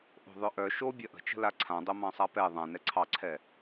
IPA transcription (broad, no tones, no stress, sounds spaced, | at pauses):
ʔ o̤ ðˤ œ ʔ œ ʃ o bʲ ɐ ʔ ə̤ t͡ʃ ə̤ l a ǀʰ ã dˤ o m ɑ̃ sˤ a p ɛ ðˤ ã n ɛ ǀʰ ɑ ǀʰ ɛ